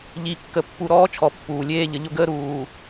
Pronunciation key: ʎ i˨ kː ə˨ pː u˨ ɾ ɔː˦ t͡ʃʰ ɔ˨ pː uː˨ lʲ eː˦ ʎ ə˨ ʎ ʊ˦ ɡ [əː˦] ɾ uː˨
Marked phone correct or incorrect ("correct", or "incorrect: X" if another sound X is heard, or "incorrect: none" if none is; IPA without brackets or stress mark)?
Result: correct